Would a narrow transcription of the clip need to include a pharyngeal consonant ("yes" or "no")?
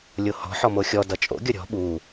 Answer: yes